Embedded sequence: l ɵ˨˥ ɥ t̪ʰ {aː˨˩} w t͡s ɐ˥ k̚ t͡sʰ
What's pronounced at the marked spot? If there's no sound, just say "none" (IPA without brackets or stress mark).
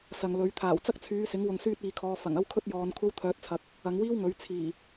aː˨˩